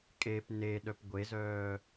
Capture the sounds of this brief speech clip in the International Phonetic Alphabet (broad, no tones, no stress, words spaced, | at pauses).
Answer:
kʼep neɗœp ɡʷezœː